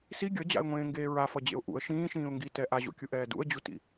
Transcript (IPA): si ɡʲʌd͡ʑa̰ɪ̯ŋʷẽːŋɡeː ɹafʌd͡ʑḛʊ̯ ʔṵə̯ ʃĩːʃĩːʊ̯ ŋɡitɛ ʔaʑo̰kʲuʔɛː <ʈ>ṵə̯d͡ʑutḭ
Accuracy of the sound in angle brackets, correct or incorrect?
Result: incorrect